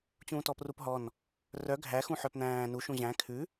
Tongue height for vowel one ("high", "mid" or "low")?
high